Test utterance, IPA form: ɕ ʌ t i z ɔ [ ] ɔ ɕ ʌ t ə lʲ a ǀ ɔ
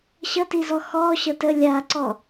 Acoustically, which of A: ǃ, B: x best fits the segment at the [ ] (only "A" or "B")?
B